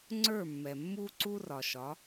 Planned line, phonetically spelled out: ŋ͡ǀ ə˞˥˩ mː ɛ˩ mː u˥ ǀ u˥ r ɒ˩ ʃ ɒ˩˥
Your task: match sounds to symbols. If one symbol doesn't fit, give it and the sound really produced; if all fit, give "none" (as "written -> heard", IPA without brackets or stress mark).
none